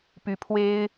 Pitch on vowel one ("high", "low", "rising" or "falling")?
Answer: rising